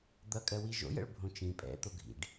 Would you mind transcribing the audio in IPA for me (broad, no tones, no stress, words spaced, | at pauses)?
d̪ʌkʼɜwi ʒo̰jə̰ɭ bʱõt͡ʃĩ pʼɛ̰ t̪oɡʱḭɖ